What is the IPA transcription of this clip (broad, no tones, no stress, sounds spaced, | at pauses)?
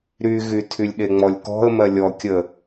ɾ y ɣ y tʰ y lʲ ɗ e ŋ͡m ɔ lʲ k ɔ̤ ə̯ m ɜ lʲ ɔ kʲ ə